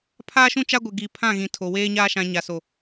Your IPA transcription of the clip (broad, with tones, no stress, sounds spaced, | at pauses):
pʰ aː˦ ʃ ũ˦ t͡ʃ a˦ ɡʷ ɪ˨ ɡ i˨ pʰ ã˦˨ ɣ ĩ˨ tʰ o˨ w eː˦ ɲ aː˦ ʃ ã˨ ɲ a˨ s o˨